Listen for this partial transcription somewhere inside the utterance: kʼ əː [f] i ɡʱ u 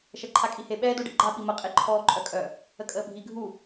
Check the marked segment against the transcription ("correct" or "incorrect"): incorrect